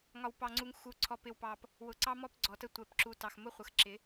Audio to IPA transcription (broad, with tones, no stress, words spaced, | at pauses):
ŋɒ˨wpɑ˨ŋ͡ǀu˨ŋ xu˨ ǀʰɔ˨pɪ˨wpɑ˨p | wʊ˨ǀɑ˦mɔ˦p ɡ͡ǀɔ˨tə˦ tʷɛ˨p ǁu˨tɑ˨x mʊ˦χʷə˨xǁɪ˨˦